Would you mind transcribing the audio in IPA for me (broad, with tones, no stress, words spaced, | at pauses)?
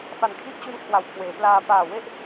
fa˨˩nkʰi˦˥ʔt͡ɕu˦˥n kʰwa˨˩wkʰweː˩˦plaː˧ paː˨˩we˥˩ʔ